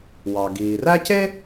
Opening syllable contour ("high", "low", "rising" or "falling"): low